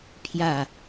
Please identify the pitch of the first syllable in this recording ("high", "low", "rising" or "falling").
falling